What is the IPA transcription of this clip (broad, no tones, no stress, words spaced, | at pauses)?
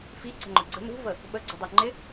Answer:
fiǀə̤ŋ͡ǃʊ ɡ͡ǀə̤ nṳvə | ɓəɡ͡ǀṳdˤu ŋ͡ǃɪ